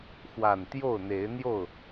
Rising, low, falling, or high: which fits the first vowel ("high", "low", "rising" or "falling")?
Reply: low